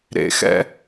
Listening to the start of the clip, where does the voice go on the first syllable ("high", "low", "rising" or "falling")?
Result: low